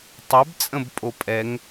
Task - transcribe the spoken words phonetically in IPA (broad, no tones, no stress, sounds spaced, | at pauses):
tˤ ɛ b t͡sʼ ə̃ b pʼ o pʼ ɛ ŋ